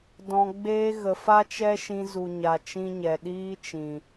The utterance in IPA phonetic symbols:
d ɔ̃˨ ɡ͡b eː˧ ɣ ə˨ f a˦ t͡ʃ ɛ˦ ʃ ĩ˧ z u˨ ɲ a˨ t͡ʃ ĩ˧ ɲ ɛ˨ ɗ iː˦ t͡ʃ ĩ˨

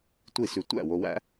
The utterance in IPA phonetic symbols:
tʷ i˥˩ s ʉ˧ tʷ æ̰˥˩ w o˧ w æ̰˥

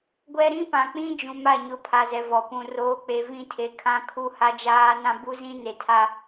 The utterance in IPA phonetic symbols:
ɡʷ ɛ˦ ɾ ĩ˦ p ã˨ k͡p ĩ˦ d͡ʒ ũ˨ m a˦˨ ɲ ʊ˦ pʰ a˨ z ɛ˨ v ɔ˨ p ũ˨ r oː˨ k͡p e˨ v ĩ˦ tʰ e˨ kʰ ã˦ kʰ u˦ h a˦ d͡ʒ aː˦ n ã˦ b u˦ z ĩ˦ n e˨ tʰ a˦

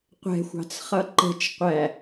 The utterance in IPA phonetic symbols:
qʷ ɛ̤ xʷ ɑ̤ t͡s χ ʌ ǃ ə̤ t͡ʃ qʷ æ

